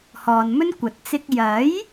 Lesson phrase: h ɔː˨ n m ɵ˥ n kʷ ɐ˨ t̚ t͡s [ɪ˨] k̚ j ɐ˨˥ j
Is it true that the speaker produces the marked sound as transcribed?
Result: no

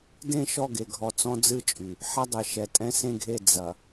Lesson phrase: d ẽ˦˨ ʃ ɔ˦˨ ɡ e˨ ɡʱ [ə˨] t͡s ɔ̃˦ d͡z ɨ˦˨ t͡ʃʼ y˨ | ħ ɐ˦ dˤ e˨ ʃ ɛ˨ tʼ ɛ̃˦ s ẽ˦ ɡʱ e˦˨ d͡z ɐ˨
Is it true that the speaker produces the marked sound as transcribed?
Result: no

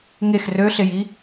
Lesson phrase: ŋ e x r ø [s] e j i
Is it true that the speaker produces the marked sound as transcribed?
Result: no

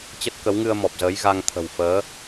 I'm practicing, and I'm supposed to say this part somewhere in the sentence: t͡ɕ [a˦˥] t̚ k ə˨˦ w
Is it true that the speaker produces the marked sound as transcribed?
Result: no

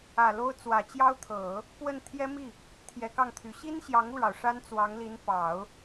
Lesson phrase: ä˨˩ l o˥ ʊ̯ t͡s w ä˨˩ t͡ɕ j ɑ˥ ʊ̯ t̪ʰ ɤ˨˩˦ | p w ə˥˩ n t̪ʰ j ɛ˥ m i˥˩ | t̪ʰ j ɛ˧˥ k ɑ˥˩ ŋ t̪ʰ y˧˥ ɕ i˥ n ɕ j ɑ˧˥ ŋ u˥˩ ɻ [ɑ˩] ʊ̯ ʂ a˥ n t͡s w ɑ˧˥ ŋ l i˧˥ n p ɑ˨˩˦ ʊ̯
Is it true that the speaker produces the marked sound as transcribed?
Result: yes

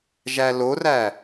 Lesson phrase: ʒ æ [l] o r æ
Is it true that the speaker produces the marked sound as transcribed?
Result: yes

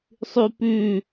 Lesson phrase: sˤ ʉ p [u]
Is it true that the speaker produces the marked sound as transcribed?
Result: no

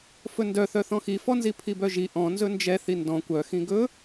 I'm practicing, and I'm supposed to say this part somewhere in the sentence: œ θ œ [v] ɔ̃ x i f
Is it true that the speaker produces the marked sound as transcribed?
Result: no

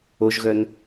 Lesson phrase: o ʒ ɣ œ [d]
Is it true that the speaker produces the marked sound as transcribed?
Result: no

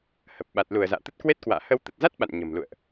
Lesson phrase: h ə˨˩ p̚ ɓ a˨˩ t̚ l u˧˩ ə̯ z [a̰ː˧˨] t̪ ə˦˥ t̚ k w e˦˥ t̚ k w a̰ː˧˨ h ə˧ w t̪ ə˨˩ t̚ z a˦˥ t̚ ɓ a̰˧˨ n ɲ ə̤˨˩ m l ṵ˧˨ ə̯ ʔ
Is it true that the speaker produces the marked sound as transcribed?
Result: yes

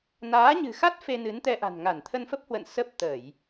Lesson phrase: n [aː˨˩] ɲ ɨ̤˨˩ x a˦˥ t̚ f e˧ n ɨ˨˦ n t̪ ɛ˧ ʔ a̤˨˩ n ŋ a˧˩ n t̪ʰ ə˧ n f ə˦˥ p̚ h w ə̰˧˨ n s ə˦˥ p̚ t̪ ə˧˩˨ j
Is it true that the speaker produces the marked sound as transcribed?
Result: no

